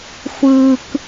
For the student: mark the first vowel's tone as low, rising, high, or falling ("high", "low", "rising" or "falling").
high